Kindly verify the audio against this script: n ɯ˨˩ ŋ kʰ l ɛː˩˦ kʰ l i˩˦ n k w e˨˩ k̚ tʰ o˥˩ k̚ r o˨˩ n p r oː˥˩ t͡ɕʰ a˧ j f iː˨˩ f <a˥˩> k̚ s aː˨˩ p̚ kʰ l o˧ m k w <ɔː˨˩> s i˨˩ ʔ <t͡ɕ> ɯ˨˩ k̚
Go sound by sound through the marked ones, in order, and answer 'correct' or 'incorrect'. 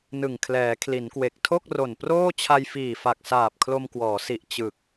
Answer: incorrect: a˨˩, incorrect: ɔː˩˦, correct

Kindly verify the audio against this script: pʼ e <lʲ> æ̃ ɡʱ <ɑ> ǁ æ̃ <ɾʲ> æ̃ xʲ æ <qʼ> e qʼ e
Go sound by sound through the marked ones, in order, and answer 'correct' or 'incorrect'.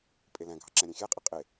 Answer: incorrect: l, correct, correct, correct

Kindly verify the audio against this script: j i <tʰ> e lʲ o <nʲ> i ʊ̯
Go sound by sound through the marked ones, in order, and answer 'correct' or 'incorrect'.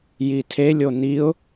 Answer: correct, incorrect: n

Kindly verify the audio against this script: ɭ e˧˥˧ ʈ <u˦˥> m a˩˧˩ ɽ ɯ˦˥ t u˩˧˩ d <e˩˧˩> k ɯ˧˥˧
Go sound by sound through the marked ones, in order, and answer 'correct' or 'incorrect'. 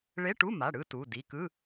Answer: incorrect: u˧˥˧, incorrect: i˩˧˩

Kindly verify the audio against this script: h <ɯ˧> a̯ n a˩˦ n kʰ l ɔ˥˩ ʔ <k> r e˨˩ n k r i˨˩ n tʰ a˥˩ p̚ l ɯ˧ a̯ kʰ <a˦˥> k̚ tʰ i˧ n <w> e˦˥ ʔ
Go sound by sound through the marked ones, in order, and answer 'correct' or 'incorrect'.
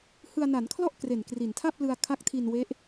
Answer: correct, correct, correct, correct

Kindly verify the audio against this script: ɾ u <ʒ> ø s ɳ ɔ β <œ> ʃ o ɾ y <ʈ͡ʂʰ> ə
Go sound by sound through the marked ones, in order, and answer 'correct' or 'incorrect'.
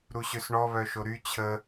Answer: incorrect: ɕ, correct, incorrect: t͡ɕʰ

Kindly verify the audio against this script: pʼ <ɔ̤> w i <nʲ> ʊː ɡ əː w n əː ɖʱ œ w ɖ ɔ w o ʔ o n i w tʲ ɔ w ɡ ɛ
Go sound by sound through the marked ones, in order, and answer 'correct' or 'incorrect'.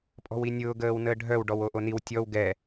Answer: correct, correct

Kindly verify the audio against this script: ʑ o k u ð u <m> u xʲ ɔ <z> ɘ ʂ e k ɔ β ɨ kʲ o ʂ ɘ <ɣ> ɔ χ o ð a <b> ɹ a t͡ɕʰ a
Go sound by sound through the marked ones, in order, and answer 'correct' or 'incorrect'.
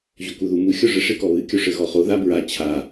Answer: correct, incorrect: ʐ, correct, correct

